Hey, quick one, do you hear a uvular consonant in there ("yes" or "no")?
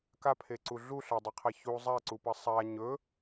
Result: yes